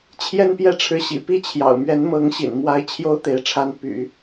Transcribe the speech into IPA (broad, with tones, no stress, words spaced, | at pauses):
t͡ɕʰjɛ˥˧npjɛ˥˩ʈ͡ʂʰɻ̩˧˥ ɕḭ˨˩pi˥t͡ɕʰjɑ̰˨˩ʊ̯ mɥɛ˧˥nmɤ˧˥ŋɕḭ˨˩n mwa˧˥ɪ̯ t͡ɕʰjo˥ʊ̯t̪e˧˥ɪ̯ʈ͡ʂʰa˧˥n py̰˨˩˦